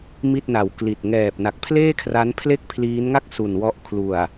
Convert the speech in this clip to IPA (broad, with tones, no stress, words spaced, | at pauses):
mi˥˩t̚na˨˩w kli˨˩t̚ ŋɛː˨˩p̚na˨˩k̚pʰleː˥˩kʰra˦˥n pʰle˥˩k̚pʰliː˦˥nŋa˥˩k̚ su˨˩nwɔ˦˥ʔ kʰlu˨˩a̯